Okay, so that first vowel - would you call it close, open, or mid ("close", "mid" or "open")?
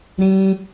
close